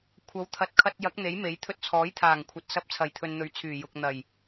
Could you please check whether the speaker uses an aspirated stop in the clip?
yes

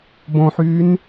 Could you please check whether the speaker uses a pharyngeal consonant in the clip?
yes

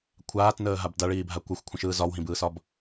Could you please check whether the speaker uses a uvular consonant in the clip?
no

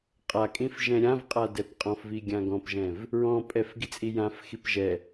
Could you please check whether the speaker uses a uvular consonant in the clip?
yes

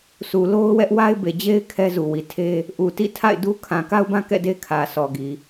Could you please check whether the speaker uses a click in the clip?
no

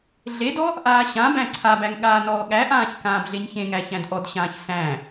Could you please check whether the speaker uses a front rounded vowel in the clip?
no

